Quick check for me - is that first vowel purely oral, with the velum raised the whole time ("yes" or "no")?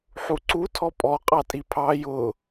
yes